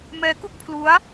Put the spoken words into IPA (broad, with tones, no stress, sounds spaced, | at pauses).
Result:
m ɛː˦˥ k u˥˩ k̚ pʰ l u˦˥ a̯